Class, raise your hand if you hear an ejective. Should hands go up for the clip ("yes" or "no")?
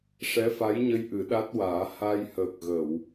no